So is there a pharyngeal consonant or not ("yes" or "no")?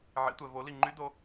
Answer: yes